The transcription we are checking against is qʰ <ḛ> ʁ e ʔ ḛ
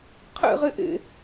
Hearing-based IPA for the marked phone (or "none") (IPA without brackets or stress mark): ḛ